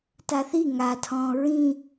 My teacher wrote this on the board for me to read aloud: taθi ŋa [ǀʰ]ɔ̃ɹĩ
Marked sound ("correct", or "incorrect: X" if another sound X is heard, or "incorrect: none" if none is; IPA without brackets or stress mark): incorrect: tʰ